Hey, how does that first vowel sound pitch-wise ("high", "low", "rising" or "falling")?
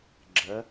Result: rising